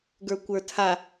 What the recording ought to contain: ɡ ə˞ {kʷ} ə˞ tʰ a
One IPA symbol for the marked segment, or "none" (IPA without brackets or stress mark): kʷ